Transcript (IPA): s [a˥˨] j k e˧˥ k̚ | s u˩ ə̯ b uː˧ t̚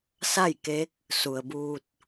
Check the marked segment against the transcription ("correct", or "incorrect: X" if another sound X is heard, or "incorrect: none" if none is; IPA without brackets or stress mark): correct